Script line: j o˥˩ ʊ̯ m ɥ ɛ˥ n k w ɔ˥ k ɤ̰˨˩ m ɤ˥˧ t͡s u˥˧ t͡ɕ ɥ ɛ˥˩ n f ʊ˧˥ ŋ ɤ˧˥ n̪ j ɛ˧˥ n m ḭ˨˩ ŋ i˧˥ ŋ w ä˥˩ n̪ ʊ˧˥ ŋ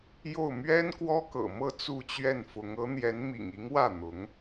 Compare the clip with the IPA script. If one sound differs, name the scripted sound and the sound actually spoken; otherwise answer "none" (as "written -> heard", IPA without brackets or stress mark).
none